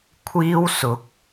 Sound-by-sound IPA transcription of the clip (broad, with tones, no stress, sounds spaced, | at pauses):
kʷʰ iː˥ w s ʊ˨˥ k̚